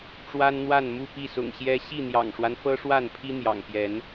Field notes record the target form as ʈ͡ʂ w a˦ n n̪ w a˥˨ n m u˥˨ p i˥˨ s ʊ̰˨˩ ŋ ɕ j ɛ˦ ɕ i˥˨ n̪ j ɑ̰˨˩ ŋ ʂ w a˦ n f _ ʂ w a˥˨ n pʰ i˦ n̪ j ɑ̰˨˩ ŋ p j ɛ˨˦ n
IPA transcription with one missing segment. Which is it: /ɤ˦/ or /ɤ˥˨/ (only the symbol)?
ɤ˦